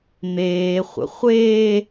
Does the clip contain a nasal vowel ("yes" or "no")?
no